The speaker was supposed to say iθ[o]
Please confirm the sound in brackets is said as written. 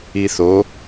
yes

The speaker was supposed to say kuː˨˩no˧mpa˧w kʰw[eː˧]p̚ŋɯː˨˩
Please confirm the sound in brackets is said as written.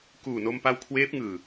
no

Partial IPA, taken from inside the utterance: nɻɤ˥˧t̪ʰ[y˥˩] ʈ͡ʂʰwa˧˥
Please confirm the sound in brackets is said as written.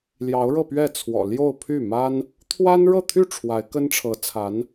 yes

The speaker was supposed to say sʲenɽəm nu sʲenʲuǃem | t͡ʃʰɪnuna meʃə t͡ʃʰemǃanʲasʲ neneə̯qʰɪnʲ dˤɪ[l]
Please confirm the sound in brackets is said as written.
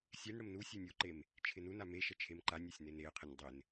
no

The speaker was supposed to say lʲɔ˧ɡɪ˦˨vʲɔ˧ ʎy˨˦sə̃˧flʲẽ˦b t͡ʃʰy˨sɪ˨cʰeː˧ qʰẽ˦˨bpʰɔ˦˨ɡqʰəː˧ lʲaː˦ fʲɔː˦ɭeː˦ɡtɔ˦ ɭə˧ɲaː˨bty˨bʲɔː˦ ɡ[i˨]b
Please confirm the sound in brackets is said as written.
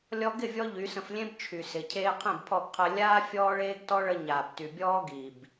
yes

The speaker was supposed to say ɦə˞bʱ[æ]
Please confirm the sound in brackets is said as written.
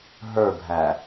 yes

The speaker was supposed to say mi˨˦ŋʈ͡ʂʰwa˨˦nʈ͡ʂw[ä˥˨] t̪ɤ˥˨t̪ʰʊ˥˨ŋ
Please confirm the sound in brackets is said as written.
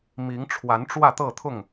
yes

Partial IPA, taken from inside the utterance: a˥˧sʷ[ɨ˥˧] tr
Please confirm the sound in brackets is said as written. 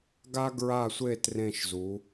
no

